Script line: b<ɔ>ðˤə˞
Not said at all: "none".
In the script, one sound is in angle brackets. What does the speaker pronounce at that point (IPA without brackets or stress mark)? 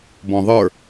ɔ̃